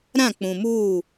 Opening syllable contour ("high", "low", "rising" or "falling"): falling